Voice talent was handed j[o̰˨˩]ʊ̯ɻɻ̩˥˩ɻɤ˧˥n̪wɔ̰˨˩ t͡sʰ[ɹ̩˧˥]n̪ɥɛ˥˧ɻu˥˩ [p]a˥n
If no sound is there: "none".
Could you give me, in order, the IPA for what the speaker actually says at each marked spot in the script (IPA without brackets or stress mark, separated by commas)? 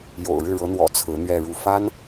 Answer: o̰˨˩, ɹ̩˧˥, f